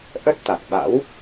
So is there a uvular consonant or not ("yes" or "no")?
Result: no